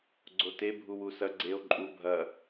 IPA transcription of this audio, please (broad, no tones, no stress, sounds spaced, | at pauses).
ɡ͡ǀ o t e bʱ u w u s ɐ ɡ͡ǀ e o̯ ǃʼ u bʱ ɐ